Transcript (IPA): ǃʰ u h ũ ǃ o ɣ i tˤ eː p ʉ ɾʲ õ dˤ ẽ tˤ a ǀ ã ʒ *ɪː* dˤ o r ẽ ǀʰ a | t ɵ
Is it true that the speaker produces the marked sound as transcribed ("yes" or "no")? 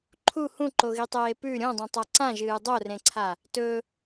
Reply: no